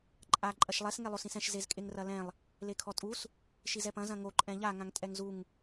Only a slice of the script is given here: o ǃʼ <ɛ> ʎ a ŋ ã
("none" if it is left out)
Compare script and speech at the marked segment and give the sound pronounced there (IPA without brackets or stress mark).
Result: ɛ̃